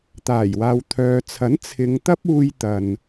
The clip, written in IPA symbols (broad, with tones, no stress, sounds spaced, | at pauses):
t̪ aː˨˩ j w aː˨ w t̪ʰ œː˨ t͡sʰ ɐ˨˥ n t͡sʰ ɪ˨˧ ŋ t̪ ɐ˥ p̚ uː˧ j t̪ ɐ˨ n